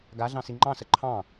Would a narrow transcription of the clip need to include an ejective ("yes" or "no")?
no